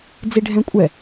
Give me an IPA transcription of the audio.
d͡ziɖʱɛ̃kʷʼɛ

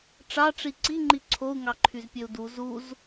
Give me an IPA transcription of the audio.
ʈ͡ʂɑʈ͡ʂi ǀiŋ͡ǃi ǀʰou̯ŋɑǃʰyzpʲøu̯ du zuz

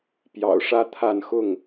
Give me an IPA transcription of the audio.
pjɑ̰˨˩ʊ̯ʂä˦t̪ʰa˥˨n xʊ˥˨ŋ

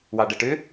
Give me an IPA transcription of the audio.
wɑɖɐʈʏ

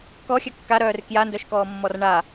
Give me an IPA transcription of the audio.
kɔxʲɘ kːaɾœːr kjandœʃkɔːmːɔr ɳa

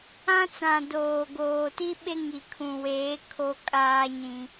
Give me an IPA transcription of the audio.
ã˦t͡sã˨ doː˨ ɡoː˨ti˦ɓe˦ ŋi˨kʰũ˨weː˨˦ kʰo˦kʼaː˦ɲĩ˦

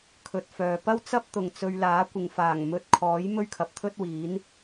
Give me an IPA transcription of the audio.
kʰɵ˨t̚fœː˨ pɐ˥wt͡sɐ˥p̚ t̪ʊ˨˩ŋ t͡sɵ˧ɥlaː˨˥ kʷɪ˨ŋfaː˨˩ŋmɵ˧t̚kʰɔː˨˥j mɵ˥ɥkʰɐ˨p̚t̪ʰɵ˥t̚wiː˨˥n

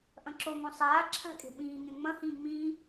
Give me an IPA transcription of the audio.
ʔɐ̃ǁoŋõ sˤaː ǁʰa̤kʼe̤ ɓĩːŋẽ ŋ͡mɐ̃hĩː ŋ͡mĩː

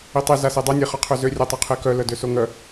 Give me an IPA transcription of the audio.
itˤi zasedˤœ nʲeχɔqʰøzø rʲœtˤœqʰekœ lœdøsoŋœ

